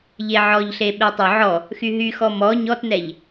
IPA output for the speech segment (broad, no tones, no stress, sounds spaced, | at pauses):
ʎ e ʕ ɔ ʎ ɬ e ɓ e tˤ ø ʕ ɔ | x y ɦ y x ɔ m ɔ ɲ ɔ t n ɛ ʎ